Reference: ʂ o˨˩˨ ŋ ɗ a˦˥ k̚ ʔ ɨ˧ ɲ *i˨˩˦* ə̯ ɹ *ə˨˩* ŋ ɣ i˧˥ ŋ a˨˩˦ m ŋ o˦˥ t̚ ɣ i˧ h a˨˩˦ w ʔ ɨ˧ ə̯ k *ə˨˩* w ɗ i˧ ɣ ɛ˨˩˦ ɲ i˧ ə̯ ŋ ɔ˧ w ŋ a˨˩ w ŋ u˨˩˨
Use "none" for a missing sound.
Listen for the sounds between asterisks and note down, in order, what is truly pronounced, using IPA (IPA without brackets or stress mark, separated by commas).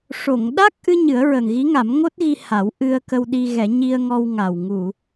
ɨ˨˩˦, ə˨˩, ə˧